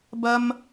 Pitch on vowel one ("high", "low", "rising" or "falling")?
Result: high